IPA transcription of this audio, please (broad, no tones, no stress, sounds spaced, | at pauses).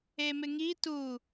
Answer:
e m ɪ ŋ i t u